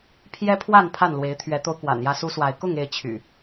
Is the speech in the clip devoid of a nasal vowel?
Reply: yes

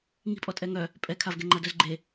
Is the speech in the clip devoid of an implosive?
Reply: yes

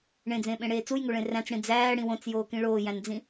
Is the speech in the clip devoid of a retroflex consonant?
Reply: no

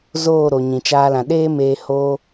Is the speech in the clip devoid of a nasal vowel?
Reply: no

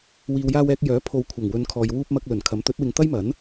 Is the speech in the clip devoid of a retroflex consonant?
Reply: yes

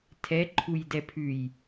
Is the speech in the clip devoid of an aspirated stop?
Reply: no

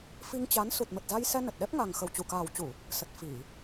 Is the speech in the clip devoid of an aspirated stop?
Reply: yes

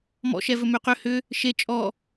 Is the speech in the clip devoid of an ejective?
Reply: no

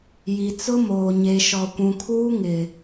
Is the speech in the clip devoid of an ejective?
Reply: yes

